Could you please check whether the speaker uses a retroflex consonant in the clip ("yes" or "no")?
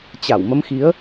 no